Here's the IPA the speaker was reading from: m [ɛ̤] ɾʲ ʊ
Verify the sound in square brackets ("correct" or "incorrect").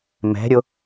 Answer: correct